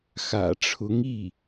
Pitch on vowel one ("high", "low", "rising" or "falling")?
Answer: low